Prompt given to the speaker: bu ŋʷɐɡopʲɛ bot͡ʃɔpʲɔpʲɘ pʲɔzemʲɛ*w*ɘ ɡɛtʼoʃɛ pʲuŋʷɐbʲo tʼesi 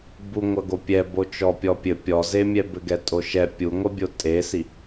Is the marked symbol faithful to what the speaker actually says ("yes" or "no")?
no